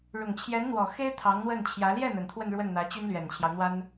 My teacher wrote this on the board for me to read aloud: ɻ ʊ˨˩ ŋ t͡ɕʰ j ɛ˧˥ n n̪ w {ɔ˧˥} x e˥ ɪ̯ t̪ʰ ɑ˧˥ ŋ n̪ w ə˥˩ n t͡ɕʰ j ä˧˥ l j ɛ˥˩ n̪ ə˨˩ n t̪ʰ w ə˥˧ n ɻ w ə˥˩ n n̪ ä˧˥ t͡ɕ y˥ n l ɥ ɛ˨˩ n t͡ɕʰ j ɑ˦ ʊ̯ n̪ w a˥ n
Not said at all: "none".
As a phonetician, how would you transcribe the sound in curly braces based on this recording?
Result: ɔ˨˩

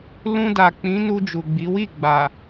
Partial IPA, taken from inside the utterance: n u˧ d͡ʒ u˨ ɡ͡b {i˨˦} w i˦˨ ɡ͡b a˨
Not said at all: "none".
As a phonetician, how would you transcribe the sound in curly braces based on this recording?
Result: i˨˦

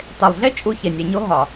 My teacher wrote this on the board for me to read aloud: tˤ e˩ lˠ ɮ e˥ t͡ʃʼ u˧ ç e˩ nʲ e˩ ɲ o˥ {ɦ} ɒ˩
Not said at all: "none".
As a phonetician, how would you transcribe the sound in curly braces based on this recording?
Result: ɦ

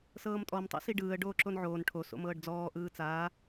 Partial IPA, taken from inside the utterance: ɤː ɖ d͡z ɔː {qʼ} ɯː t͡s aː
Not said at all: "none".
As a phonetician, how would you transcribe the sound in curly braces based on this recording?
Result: ʔ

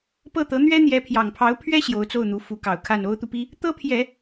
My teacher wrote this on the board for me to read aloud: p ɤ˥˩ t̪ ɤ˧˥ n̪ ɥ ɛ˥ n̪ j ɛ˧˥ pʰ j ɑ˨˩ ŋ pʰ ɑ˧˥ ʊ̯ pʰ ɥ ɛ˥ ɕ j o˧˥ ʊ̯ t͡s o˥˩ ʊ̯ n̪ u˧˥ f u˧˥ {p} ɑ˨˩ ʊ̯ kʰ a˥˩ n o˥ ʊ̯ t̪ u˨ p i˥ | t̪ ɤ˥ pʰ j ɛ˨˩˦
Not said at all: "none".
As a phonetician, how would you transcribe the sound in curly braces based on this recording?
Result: k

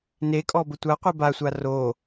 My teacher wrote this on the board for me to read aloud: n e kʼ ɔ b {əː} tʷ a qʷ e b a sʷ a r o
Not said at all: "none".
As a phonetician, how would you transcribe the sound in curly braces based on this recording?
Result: ə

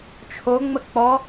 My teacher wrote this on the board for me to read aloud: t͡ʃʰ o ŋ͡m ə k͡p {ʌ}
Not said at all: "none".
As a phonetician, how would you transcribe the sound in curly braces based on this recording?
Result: ɔ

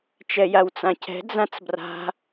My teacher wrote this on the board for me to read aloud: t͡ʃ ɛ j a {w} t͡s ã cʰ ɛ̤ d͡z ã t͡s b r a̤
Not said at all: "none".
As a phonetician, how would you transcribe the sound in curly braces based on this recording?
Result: w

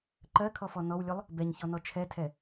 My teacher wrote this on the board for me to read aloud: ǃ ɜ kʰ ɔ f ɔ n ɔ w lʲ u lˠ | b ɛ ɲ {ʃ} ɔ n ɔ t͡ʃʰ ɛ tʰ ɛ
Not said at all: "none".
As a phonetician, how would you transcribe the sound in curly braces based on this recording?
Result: ç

